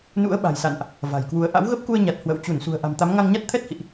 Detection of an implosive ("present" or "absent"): present